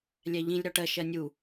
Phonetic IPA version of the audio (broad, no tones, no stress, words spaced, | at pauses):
lʲæʎĩlʲ ɾɒʈɜ ʃɜnʲu